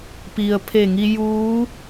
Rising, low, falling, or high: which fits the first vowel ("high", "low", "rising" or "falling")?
low